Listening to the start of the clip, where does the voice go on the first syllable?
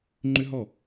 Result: high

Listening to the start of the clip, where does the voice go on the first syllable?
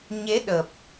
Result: rising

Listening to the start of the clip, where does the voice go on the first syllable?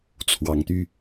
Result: rising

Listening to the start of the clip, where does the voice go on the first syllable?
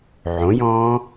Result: rising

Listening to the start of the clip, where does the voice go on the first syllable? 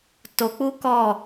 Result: low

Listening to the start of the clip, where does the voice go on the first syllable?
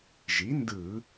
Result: rising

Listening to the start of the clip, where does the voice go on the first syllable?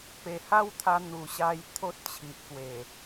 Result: low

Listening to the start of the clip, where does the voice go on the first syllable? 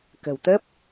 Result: low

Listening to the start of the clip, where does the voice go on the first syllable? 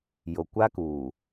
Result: low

